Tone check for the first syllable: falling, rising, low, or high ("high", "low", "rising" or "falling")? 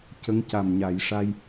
rising